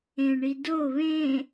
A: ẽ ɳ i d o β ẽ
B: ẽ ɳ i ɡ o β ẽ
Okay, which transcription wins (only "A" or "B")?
A